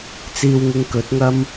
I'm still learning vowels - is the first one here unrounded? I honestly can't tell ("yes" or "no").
yes